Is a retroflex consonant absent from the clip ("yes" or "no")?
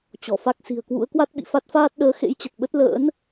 yes